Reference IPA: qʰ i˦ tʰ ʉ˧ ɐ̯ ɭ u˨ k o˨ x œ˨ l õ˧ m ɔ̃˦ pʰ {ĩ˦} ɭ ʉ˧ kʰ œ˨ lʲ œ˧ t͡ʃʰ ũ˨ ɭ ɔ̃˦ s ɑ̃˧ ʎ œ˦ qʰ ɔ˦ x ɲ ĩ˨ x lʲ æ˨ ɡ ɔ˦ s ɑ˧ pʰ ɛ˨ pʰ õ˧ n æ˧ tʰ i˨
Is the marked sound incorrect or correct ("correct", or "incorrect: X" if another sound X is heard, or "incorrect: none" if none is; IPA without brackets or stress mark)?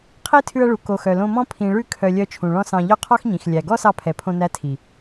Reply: incorrect: ĩ˨